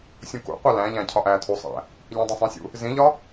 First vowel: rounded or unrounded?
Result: rounded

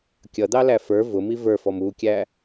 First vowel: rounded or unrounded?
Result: unrounded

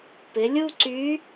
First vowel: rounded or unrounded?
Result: unrounded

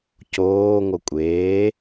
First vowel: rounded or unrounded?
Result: rounded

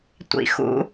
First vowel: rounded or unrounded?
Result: unrounded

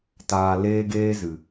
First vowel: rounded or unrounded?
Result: unrounded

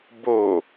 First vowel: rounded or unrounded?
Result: rounded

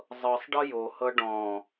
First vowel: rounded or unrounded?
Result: unrounded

